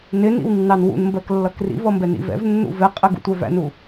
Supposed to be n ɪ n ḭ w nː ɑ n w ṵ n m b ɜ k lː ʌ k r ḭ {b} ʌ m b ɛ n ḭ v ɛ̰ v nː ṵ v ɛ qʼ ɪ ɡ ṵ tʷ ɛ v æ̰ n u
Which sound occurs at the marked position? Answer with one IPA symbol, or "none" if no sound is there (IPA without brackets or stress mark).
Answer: v